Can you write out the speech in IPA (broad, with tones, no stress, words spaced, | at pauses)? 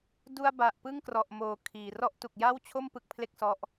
du˧a̯ ba˨˩ʔpɯ˥˩ŋkrɔ˨˩ʔmoː˩˦ kʰiː˨˩ rɔ˦˥ʔtu˨˩k̚ja˥˩wt͡ɕʰo˥˩m pɯ˦˥k̚pʰle˥˩k̚sɔ˦˥ʔ